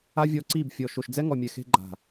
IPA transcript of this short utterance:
a˦ vʲ ɔ˧ ǀ i˦˨ b fʲ ɔ˨ ʃ o˨ ʃ d͡z ɛ˦ ŋ ɔ˨ mʲ ɛ˨ x e̤˧ ɡ͡ǃ a̤˨

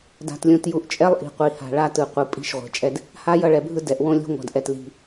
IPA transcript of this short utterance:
d a̤˨ t lʲ ũ˨ t j u˨ ʔ t͡ʃʼ ɛ˦ lˠ ʔ i̤˨ qʷ i˨ h a̤˨ ɭ a˦ t ɯ˨ qʷ ɯ˨ pʼ i̤˦ ʃ ʁʷ e̤˨ t͡ʃʼ ɛ˦ d | h a˦ j ʌ˦˨ ɭ ɛ˨ bʱ ɯ˦ d ɛ˨ ʔ w õ˦ lʲ ṳ˦ ŋʷ a̤˨ d ʔ ɛ˨ t l i̤˨

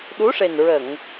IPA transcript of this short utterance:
ɗ u˧˥ ʂ e˨˩ n ɹ ə˨˩˨ ŋ

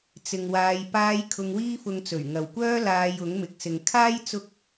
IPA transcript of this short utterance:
t͡s ɪ˨ ŋ w aː˨˧ j p aː˧ j kʰ ʊ˧ ŋ w iː˥ f ʊ˧ ŋ t͡s ɵ˨˩ ɥ ŋ ɐ˨ w kʷ œː˥ l aː˧ j ʊ˨˥ ŋ m ɪ˨ k̚ s ɪ˨ ŋ kʰ aː˥ j t͡s ʊ˥ k̚

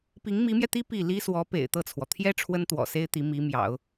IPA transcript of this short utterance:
p i˧˥ ŋ m i˧˥ m j ɛ˧ t̪ i˥ p i˥˩ l i˥ s w ɔ˧˥ p ḛ˨˩ ɪ̯ t̪ ɤ˥˩ t͡sʰ w ɔ˩ t̪ʰ j ɛ˥ ʈ͡ʂʰ w ə˥ n t̪ w ɔ̰˨˩ s e˥ ɪ̯ t̪ i˧˥ m i˧˥ m j ɑ̰˨˩˦ ʊ̯

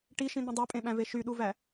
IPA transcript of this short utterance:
ʈ i ʃ ĩ n̪ ĩ dˤ æ pʼ ẽ ɓ æ̃ v e ʃ y ɗ u v æ

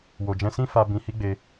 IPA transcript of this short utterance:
w o˨ d͡ʒ ɛ̃˧ s ĩ˦ f a˧ b ĩ˧ h i˦ ɡ͡b e˧

